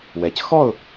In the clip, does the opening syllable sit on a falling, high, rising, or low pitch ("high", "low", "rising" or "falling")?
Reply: low